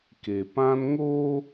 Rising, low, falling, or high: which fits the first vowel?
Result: low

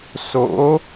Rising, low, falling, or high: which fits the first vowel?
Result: rising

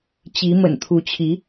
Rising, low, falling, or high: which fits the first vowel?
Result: rising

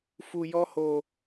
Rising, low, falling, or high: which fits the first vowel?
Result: low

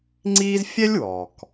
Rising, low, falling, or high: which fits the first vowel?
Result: high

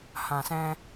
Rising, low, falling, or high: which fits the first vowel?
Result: low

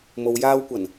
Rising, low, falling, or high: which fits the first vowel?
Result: low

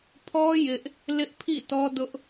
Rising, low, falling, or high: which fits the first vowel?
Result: high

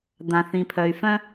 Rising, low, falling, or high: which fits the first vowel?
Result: low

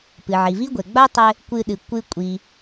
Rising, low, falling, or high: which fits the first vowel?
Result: low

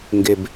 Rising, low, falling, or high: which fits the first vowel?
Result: low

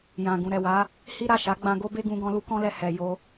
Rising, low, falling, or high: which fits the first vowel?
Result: low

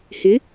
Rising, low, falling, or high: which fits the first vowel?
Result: rising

